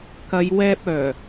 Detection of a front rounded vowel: present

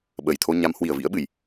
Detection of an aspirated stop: present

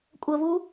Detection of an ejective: present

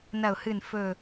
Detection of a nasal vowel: absent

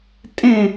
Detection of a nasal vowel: present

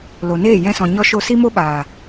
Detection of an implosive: present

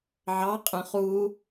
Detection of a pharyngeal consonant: present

